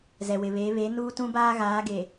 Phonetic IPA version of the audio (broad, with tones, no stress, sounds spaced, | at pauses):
z ɛ˨ w ɪ˨ β eː˨˦ β e˨˦ n uː˦ t ũ˦ b aː˦ ɣ aː˨˦ ɡ e˨